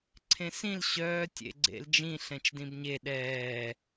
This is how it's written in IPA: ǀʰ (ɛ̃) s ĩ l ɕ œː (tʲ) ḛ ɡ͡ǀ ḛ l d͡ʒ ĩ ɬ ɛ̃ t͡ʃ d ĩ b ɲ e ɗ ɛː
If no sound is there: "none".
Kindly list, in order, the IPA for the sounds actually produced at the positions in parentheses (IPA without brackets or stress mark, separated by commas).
ẽ, tʲ